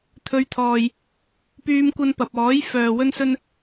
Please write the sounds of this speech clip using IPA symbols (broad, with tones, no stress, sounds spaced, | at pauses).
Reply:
t̪ʰ ɵ˨˧ ɥ t̪ʰ ɔː˨ j | p yː˧ m kʷ ɐ˧ n p ɐ˨ p̚ ɔː˨˥ j f œː˨ w ɵ˧ n s ɵ˧ n